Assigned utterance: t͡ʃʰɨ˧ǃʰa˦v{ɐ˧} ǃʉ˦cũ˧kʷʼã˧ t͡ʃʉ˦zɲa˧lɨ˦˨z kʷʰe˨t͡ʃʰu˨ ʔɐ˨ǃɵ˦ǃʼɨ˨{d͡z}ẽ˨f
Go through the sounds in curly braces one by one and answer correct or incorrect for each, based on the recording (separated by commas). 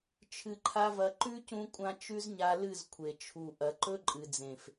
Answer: correct, correct